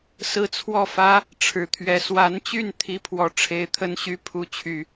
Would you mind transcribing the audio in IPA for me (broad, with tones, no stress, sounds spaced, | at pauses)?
s ɹ̩˥˧ t͡sʰ w ɔ˥˩ f ä˥ | ʈ͡ʂʰ ɻ̩˧˥ t̪ʰ ɥ ɛ˨˩ s w a˧˥ n t͡ɕ y˥˩ n t̪ʰ i˥ pʰ w ɔ˧˥ ʈ͡ʂʰ e˧˥ ɪ̯ t̪ʰ ə˥ n ɕ y˥ pʰ u˧˥ t͡ɕʰ y˨˩˦